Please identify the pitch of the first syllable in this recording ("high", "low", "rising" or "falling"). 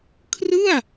falling